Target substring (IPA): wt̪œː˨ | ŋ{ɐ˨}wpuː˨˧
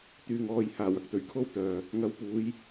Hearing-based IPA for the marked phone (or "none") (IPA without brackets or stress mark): ɐ˨˧